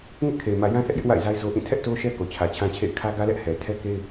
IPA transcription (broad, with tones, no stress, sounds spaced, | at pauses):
ŋ ɪ˦ ʔ kʰ e˨ ɪ̯ m ä˨ j ã˦ θ ɛ˦ ʔ j ɪ˦ ʔ w a̰˦˨ ɪ̯ z a˦ ɪ̯ z o˦ ʔ ĩ˦˨ tʰ ɛ˦ ʔ t o˦ ʃ ɛ˦ k o˨ t͡ɕʰ ä˨ t͡ɕʰ ã˦ t͡ɕʰ ḛ˦˨ ɪ̯ kʰ ä˦ ɡ ä˦ l ɛ˦ ʔ h ɛ˨ tʰ ɛ˦ k e˦ ɪ̯